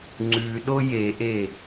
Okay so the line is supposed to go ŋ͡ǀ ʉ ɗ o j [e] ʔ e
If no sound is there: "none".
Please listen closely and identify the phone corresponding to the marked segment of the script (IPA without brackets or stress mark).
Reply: e